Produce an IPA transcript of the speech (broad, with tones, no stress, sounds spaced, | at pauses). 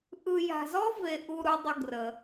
ʔ ɯ˧ j a̤˧ z ɔ˥ v e˧ ʔ u˧ ɾ u˧ dˤ ə˧ ɡ r ə˩